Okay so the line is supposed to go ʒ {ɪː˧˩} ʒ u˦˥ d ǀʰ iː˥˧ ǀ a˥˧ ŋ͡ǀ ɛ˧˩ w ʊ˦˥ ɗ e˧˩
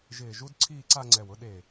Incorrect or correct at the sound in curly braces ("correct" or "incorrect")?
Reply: correct